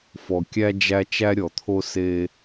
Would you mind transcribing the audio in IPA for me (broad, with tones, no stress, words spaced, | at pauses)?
fɔ˨kʲæ˥ d͡ʒæ˦ t͡ʃæ˥ɾʲɔ˨t̪ʰo˥ se˦